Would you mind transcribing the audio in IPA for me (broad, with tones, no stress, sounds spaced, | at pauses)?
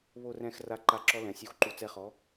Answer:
β o˦˨ r ɛ̃˦˨ x r a˧˥ ǃ a˧˥ ǁ ɔ˧˥ l ɛ̃˩˥ sʲ u˦˨ x ǃ u˧˥ t͡s ɛ˧˥ χ ɔ˩˥